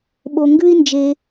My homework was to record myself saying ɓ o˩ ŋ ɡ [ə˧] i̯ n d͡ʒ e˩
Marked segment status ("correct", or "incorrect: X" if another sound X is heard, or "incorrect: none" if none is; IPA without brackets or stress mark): incorrect: ʉ˧